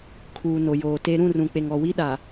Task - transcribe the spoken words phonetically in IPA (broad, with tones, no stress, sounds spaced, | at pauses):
kʰ uː˨ n o˨ j oː˨ t e˨ ɾ ũ˦˨ r ũ˨ k͡p e˨ ŋ ɔ˨ w i˦ ɗ a˨